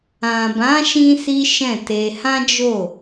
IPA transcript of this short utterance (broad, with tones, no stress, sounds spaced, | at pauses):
ã˨ b ã˨˦ ʃ ĩ˧ s i˦ ʃ ɛ̃˦˨ t e˧ h ã˦ d͡ʒ o˦˨